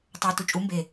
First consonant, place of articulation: alveolar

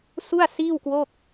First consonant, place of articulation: alveolar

